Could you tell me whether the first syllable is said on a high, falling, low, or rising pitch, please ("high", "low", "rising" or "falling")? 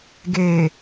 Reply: low